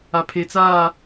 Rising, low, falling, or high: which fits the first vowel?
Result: low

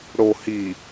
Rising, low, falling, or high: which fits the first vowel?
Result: low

